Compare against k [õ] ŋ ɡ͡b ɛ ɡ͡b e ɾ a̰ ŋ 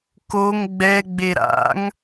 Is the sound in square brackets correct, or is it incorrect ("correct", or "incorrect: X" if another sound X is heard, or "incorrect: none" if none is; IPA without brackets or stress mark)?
incorrect: o